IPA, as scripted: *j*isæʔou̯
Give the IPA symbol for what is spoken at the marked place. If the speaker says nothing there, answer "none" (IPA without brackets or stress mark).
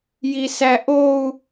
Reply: j